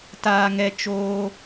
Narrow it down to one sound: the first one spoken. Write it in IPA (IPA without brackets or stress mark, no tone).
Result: t